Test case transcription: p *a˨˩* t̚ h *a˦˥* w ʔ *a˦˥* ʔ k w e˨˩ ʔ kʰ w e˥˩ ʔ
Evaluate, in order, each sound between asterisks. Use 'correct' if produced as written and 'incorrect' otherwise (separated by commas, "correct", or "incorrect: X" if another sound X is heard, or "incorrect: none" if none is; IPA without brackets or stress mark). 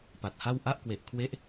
correct, incorrect: a˥˩, correct